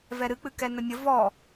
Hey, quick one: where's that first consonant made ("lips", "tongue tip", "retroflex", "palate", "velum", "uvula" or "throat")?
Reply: lips